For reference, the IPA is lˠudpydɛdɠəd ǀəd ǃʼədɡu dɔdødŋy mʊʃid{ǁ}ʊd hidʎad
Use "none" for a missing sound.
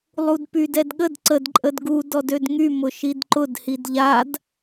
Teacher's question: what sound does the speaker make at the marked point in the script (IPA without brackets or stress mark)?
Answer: ǃ